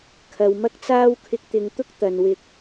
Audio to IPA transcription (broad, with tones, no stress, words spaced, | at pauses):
kʰɐ˨˧w mɐ˥k̚t͡saː˥w kʰɪ˧k̚t̪ɪ˨˧ŋt̪ʊ˥k̚ t̪ɐ˨nwɪ˧k̚